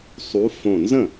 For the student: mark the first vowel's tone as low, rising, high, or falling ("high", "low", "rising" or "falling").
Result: rising